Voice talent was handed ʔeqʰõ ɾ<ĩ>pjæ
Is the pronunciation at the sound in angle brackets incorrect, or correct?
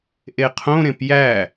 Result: incorrect